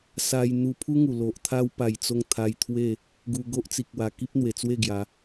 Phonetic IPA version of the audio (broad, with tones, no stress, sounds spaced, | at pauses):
s a˧ j n̪ u˧ pʰ u˦ ŋ u˨˩ l o˨ ʔ t̪ʰ a˧ w p a˨˩ j t͡s o˧ ŋ t̪ʰ a˧ j t̪ʰ w e˥˧ | ɡ u˧ ɡ o˦ ʔ t͡s i˨ k̚ w a˨˩ k i˦ p̚ n̪ w e˨˩ t͡s w e˥˧ ɡ j a˨˦